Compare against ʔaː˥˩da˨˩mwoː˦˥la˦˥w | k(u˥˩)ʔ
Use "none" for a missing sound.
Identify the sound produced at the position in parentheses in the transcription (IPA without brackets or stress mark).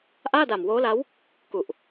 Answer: u˨˩